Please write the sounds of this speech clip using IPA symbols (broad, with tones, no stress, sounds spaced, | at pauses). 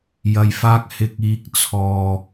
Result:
j ɐ˨ j f aː˧ k̚ h ɪ˨ k̚ iː˨˥ k̚ t͡sʰ ɔː˨